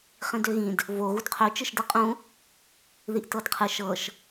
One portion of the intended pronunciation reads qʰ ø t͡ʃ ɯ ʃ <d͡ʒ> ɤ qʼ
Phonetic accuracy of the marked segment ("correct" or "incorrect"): incorrect